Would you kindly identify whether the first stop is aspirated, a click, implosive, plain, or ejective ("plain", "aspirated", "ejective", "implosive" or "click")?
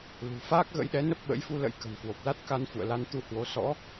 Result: plain